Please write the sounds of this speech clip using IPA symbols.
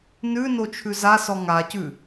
n ʉ n o t͡ʃʰ ʉ z a s ɔ ŋ a c ʉ

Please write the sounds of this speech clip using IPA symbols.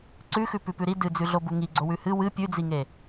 ǀ ʉ x ʉ p ʉ p ʉ ɾ i d ɨ d͡z ʉ ɮ o b u ŋ i ɡ͡ǀ o w ʉ h ɨ w ɨ pʲ ʉ d͡z i ŋ e

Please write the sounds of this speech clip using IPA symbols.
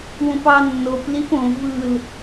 w õ p ɑ nː o p l i p õ v ɯ l

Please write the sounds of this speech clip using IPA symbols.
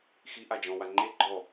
x i ʔ a d͡ʒ ɔ̃ w a ŋ͡ǃ e ɡ͡ǃ ɔ

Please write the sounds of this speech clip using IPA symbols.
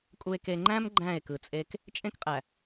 kʼ u˨ e̯ k e˨ ŋ͡ǃ æ̃˦ m ɡ͡ǃ æ̃˦˨ e̯ k ɯ˨ t͡sʼ e˦ k | t͡ʃʼ ẽ˦ k qʼ æ˨

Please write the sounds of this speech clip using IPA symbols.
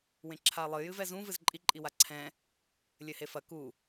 w ẽ ǁʰ a lˠ ɨ j ɨ v ɛ z ũ v ɨ z ǃʼ i ǃʼ i w a ǀʰ ɛ̃ | lʲ ɘ h e f ɐ k u

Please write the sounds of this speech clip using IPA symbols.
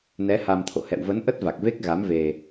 n ɛ˨˦ h a˧ m t̪ʰ o̰˧˨ h ɛ̰˧˨ w v ə˨˦ n ʔ ə˦˥ t̚ v a˨˩ k̚ v e˦˥ k̚ ɣ a˨˦ m v e˧

